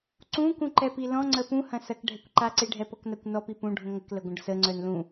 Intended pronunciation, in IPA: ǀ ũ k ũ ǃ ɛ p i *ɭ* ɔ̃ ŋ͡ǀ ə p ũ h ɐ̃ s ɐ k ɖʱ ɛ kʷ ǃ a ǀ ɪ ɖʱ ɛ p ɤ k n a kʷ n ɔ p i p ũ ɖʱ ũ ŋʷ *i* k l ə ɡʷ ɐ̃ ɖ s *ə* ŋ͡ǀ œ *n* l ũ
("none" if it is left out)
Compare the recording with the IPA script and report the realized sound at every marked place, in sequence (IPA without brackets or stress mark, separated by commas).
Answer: l, ɪ, ə, n